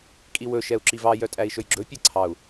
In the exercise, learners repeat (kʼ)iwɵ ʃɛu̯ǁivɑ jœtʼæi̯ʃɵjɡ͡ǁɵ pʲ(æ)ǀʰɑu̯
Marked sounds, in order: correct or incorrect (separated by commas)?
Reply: correct, correct